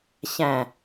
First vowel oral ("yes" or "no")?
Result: no